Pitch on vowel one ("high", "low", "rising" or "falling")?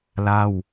falling